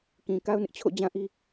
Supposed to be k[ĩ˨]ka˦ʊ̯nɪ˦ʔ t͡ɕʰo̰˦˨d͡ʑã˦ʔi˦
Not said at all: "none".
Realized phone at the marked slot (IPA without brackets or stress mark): ĩ˨